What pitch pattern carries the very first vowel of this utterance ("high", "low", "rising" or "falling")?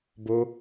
high